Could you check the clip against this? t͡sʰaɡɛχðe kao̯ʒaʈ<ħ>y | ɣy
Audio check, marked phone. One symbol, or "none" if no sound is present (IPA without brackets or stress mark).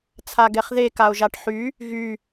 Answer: ħ